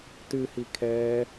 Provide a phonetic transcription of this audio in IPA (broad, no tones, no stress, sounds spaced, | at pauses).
t ɨ h i kʰ ɛː